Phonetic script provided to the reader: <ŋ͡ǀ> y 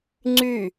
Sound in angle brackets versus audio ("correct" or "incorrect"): correct